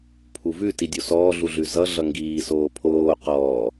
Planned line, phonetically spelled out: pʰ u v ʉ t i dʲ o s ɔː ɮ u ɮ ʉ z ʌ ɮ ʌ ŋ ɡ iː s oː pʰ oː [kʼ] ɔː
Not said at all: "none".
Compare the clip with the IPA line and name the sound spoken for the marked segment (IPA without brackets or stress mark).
q